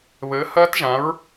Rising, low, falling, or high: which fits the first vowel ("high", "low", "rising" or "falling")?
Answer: rising